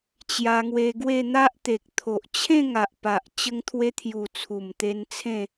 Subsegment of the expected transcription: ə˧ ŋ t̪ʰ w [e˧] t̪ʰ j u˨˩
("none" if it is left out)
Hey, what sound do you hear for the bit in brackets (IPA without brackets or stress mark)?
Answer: e˧